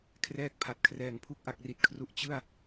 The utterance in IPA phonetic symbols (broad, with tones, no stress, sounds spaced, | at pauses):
kʰ r ɛː˥˩ k̚ pʰ a˨˩ t̚ kʰ r ɛː˨˩ ŋ pʰ u˥˩ k̚ ʔ a˨˩ k̚ r i˨˩ t̚ kʰ r u˨˩ ʔ t͡ɕ ɯ˥˩ a̯